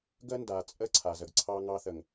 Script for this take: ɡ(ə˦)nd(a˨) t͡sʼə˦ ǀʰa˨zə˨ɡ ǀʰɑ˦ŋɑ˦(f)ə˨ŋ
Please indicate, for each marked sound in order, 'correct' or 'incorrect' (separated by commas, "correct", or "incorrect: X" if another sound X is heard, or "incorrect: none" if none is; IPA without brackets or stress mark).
correct, correct, incorrect: θ